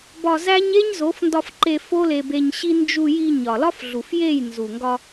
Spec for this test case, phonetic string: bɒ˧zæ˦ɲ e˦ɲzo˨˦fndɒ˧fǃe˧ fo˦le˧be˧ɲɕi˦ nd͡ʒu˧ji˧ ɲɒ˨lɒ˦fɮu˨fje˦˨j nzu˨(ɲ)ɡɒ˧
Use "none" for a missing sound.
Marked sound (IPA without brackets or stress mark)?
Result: ŋ